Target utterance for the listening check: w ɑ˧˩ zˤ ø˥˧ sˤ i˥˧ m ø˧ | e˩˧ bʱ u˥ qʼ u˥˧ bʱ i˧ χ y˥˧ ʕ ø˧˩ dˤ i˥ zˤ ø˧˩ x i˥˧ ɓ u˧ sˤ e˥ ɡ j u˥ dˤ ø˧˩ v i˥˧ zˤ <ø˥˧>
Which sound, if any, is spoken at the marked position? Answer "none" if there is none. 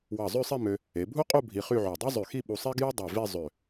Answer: ø˧˩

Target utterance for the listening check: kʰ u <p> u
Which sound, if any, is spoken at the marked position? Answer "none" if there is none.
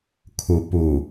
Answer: p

